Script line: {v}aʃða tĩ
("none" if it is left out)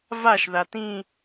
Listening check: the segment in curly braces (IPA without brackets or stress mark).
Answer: v